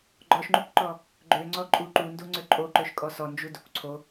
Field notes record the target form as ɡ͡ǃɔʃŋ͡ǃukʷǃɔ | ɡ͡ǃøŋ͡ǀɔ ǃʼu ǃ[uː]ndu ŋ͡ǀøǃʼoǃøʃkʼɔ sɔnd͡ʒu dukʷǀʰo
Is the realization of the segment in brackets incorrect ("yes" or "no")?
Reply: yes